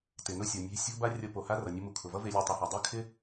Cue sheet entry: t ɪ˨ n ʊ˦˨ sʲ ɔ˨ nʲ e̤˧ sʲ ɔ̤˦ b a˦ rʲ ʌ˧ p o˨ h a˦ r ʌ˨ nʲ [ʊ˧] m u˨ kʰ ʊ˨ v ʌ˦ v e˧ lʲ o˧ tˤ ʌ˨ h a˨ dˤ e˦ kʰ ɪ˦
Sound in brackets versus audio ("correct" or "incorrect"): correct